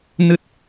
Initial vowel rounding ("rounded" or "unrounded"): unrounded